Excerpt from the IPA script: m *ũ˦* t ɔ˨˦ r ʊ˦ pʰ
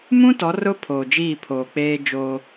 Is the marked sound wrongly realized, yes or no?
no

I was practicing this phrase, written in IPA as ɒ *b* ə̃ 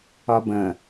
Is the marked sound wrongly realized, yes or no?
no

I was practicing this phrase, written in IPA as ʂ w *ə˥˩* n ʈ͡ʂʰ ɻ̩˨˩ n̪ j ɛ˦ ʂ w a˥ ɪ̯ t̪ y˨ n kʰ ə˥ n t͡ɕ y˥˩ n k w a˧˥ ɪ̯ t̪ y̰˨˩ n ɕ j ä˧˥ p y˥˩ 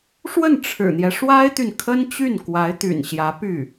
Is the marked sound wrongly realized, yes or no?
no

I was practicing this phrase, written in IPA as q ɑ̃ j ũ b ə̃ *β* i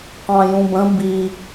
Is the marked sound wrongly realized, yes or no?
yes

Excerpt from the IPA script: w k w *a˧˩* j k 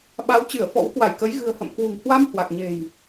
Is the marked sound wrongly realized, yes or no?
no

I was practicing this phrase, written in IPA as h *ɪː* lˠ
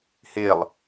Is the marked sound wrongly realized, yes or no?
no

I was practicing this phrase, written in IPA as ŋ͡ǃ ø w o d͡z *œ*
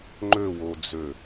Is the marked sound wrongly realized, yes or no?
yes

